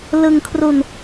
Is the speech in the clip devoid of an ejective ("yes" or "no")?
yes